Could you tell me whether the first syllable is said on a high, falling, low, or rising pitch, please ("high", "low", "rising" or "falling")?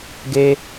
high